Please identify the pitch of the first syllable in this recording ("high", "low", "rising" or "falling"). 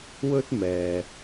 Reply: high